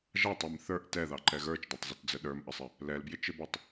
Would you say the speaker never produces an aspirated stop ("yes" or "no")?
yes